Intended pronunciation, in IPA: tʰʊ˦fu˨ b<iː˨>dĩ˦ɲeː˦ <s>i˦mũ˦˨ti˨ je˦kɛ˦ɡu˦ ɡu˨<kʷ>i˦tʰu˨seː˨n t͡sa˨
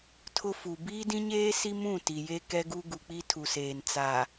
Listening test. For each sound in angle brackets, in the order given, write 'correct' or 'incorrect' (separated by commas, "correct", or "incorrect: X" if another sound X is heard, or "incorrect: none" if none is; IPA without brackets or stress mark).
incorrect: iː˦, correct, incorrect: k͡p